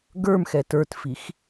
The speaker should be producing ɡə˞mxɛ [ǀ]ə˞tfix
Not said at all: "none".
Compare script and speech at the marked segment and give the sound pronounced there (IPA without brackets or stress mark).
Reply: t